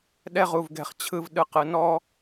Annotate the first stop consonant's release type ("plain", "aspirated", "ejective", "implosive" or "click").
implosive